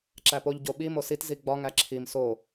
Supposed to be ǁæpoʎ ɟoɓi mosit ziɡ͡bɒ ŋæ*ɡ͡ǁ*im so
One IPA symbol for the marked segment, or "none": ǁʰ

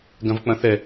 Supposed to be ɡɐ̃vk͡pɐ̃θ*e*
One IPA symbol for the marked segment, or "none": ɛ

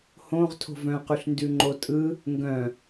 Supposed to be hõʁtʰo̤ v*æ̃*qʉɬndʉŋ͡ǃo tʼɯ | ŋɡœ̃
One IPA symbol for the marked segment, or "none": œ̃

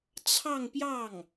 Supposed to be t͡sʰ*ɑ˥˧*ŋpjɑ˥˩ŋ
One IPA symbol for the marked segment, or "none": ɑ˥˧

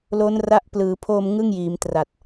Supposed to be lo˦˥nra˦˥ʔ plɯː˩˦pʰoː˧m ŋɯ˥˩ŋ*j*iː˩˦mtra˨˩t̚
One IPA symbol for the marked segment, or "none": j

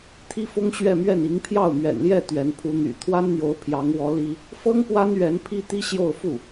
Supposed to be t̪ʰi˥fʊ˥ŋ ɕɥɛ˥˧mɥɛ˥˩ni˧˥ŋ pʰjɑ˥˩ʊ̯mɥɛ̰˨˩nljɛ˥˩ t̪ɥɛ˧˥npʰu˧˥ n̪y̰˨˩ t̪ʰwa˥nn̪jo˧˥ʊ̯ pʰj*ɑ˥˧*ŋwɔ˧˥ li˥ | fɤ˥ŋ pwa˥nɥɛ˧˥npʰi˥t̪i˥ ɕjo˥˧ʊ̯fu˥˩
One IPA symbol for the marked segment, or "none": ɑ˧˥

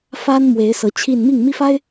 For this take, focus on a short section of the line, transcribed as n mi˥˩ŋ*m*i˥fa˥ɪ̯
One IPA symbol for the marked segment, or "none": m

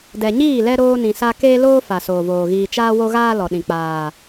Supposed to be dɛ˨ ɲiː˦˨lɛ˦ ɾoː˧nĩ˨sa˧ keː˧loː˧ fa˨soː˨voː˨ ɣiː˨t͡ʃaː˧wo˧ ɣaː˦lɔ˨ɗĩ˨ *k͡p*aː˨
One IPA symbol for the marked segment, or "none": k͡p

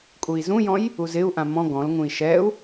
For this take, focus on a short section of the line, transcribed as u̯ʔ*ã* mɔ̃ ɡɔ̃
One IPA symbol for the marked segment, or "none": ã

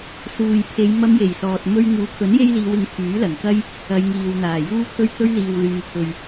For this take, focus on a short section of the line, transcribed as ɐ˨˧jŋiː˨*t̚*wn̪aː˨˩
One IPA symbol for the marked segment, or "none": none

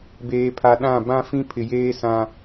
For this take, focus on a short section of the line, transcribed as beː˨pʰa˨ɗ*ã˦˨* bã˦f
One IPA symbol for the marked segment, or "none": ã˦˨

